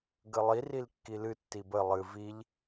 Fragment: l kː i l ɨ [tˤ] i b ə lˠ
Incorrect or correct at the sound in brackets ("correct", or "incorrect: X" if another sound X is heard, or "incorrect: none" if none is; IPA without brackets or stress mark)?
incorrect: tː